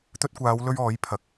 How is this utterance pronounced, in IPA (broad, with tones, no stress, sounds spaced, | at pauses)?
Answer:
t̪ ɵ˧ t̚ kʷ aː˨˧ w l ɵ˧ ɥ ɔː˨˥ j pʰ ɐ˨ k̚